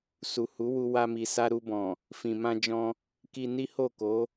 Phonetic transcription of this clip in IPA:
s u˨ h u˨˦ w u˧ w a˧ m i˨ s a˧ ɾ u˧ b ɔ̃˨ | f ĩ˨ m ã˧ d͡ʒ ɔ̃˧ | k i˧ n i˦ h o˦˨ k o˨˦

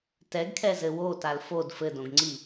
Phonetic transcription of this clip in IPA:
t ɛ ɡ kʰ ɛ z ɘ w o t a l f o d f ɘ d õ ɡ ŋ͡ǀ i

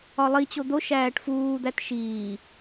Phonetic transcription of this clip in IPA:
ɒ lˠ i t͡ɕ o d̪ o ʃ æː ʈ f uː d̪ æ t ʃ iː

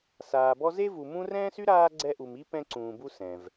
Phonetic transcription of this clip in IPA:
s aː˨ b ɔ˦ z e˥ v u˨ m ũ˦ r ɛ̃ː˥ s y˥ ɾ aː˦ ɡ͡ǀ ɛ˦ ʔ u˨ m i˥ p ɛ̃˦ ǀ ũː˨ b u˦ s ɛ̃˩ v

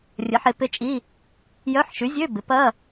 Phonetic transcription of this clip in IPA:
rʲ ə˨˥ ħ e˨˥ p ɪ˧˥˧ t͡ʃʼ i˧˥˧ | j œ˧˥˧ ħ ʃ y˨˥ zʲ ø˧˥˧ b ɪ˨˥ p ɐ˧˥˧

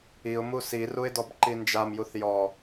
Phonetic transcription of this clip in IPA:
i ʊ̯ m u s i r u ɪ̯ d ɔ b ǃ i n d͡ʒ a m j u θ j ɔ

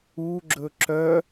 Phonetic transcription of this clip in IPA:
u ɡ͡ǁ ɵ ǁ œ

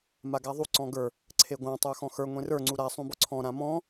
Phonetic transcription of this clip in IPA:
m a ɡ a ðˤ u ǀ ɔ̃ ɡ ə˞ | ǀʰ e ɡʷ ã tˤ ə˞ x ɔ̃ x ə˞ ŋʷ ẽ r ə˞ ŋ͡ǀ u ɾ a sˤ ũ b ɔ ǀʰ ɔ̃ ɾ ã m ɔ̃

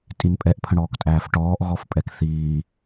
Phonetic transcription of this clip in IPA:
tʼ i n pʼ ɛ ʔ pʰ ə̃ ɽ ɔː k tʼ æː f ʈ ɔː ʔ ɣ ɔ f pʼ ɛ k θ iː

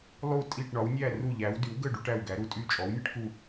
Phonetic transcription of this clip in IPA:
lˠ u˧˩ tʼ i˧˩ ʈ ɳ ɒ˩˧ w nʲ æ˧˩ r u˧˩ ʎ æ˩˧ w d y˩˧ w ɡ ə˧˩ ɖ u˩˧ ʈ æ˧˩ w ɡ æ˩˧ ɾ u˧˩ tʼ y˧˩ t͡ʃʼ ɔ˩˧ w nʲ ə˩˧ ʈ k u˧˩

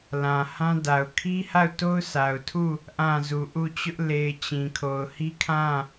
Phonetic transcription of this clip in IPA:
l ã˨ h ã˦ d a˨ ʊ̯ kʰ i˦ h a˦˨ ʊ̯ t o˦ ʊ̯ s a˨ ʊ̯ tʰ u˦˨ | ʔ ã˦˨ z u˨ ʔ u˦˨ t͡ɕ ʊ˦ ʔ l e˨ ɪ̯ t͡ɕ ĩ˨ kʰ o˨ ʊ̯ h i˦ kʰ ã˦˨

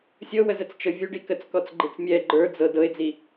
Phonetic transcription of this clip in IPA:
sʲ ɤ w ə z ə t͡s t͡ʃ ɤ vʲ u ɖ i k ə t͡s k ɔ t͡s ɡ͡ǃ i t͡s mʲ ɛ ɡ͡ǃ ə˞ d͡z ɤ d ɤ ɪ̯ d͡z i

